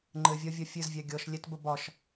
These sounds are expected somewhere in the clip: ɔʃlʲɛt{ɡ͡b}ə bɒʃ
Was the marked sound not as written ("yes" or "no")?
yes